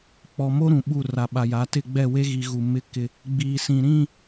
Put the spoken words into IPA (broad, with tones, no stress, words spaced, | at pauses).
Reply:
k͡pɔ˨mo˦ ɾũ˨ɓu˦˨ ra˨ɓa˨ja˨˦ tɪ˦˨ ɡ͡bɛ˦˨we˦ɣi˨ ɣu˨ mɪ˦ kɪ˦ | ɡ͡biː˨sĩ˨ɾĩ˦˨